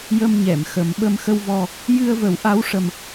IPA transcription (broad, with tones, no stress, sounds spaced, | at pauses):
j ə˧ m ɲ ɛ˨˩˨ m x ə˨˩˦ m ɓ ə˧ m x ə˧ w v ɔ˧ | j ɨ˧ ə̯ v ə˨˩˦ w ʔ a˧˥ w ʂ ə˧ m